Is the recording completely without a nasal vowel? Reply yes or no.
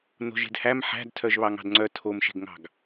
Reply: yes